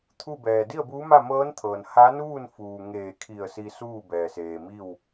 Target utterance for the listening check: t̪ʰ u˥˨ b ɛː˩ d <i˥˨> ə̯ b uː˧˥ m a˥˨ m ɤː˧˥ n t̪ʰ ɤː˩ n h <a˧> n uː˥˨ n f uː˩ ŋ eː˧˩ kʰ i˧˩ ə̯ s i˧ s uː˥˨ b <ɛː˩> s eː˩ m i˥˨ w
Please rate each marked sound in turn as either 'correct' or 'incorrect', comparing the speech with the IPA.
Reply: correct, incorrect: a˧˥, correct

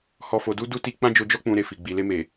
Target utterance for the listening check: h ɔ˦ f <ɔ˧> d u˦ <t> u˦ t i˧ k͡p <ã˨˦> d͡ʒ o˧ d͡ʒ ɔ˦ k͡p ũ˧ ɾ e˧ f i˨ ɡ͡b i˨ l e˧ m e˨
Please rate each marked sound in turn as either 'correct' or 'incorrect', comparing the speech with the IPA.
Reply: incorrect: o˧, incorrect: d, incorrect: ã˦

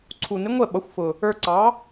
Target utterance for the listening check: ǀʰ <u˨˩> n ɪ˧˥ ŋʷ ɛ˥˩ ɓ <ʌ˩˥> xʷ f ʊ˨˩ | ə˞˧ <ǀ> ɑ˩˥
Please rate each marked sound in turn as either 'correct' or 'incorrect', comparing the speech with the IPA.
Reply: correct, correct, correct

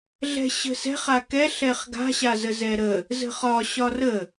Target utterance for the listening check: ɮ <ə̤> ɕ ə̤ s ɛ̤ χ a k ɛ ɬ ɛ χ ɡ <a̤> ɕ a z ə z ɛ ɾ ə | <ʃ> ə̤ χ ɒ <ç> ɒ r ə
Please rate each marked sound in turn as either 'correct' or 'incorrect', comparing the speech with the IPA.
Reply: incorrect: ɛ̤, correct, incorrect: z, incorrect: ɕ

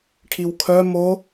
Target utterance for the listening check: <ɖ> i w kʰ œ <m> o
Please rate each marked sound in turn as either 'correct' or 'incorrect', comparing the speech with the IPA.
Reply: incorrect: ʈʰ, correct

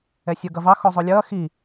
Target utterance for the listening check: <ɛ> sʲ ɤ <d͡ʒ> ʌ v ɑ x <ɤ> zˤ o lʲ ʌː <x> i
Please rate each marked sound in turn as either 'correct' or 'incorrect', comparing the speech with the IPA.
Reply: correct, incorrect: ɡ, incorrect: o, correct

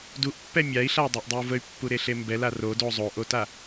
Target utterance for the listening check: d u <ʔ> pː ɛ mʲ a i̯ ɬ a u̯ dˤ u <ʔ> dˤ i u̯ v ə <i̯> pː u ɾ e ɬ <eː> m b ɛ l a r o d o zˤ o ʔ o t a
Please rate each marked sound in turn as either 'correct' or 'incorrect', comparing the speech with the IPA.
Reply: correct, correct, incorrect: y̯, incorrect: e

